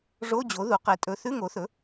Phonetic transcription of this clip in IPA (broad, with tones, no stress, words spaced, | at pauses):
ʐo˧˥˧d͡ʑo˩˥ ðu˩˥qe˩˥ tʼɵ˩˥ θʉ˧˥˧ŋo˩˥θɵ˩˥